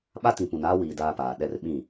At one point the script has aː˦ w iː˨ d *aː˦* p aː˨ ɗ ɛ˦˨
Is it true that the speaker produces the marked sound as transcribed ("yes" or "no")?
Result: yes